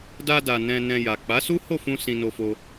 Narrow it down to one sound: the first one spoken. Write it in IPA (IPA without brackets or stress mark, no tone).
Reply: d